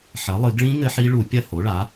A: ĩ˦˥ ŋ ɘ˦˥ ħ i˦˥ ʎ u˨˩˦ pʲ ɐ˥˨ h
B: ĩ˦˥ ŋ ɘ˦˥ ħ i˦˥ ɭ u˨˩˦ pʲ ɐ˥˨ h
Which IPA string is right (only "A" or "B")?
B